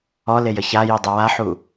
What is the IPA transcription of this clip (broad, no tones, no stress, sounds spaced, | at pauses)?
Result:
ɔ l e j ə ç a j i dˤ i w a ħ u